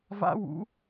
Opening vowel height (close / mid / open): open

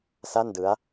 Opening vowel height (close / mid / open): open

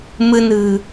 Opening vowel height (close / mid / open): close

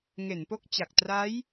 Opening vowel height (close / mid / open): mid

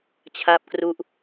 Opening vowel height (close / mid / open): open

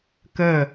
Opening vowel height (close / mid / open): mid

